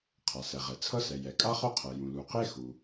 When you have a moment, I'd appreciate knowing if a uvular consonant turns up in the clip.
yes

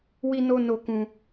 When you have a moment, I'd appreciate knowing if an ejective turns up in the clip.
no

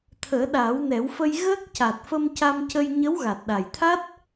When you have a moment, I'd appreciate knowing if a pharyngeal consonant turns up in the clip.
no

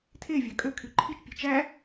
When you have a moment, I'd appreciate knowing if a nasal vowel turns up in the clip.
no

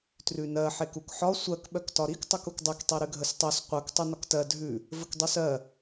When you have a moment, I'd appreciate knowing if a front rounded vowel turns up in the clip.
yes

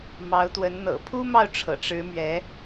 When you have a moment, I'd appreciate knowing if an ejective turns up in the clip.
no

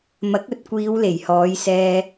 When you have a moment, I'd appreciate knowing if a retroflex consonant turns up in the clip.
no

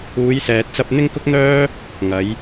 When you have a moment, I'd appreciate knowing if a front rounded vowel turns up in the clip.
yes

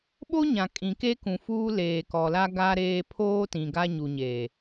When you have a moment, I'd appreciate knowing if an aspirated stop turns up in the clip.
yes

